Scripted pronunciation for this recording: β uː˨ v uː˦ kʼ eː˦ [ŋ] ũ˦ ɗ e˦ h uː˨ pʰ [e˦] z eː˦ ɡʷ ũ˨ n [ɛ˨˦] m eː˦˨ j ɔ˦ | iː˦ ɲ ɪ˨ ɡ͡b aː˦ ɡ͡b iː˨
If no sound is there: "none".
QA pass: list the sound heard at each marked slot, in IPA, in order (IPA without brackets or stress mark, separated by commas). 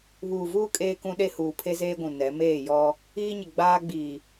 k, e˦, ɛ˨˦